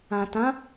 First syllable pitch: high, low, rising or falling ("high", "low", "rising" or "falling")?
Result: low